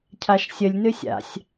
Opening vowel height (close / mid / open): open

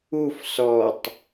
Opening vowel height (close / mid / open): close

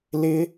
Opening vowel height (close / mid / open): close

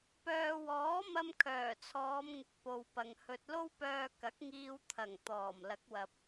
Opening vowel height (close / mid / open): mid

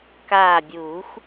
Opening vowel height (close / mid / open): open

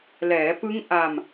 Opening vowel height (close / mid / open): mid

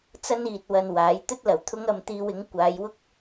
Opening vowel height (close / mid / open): open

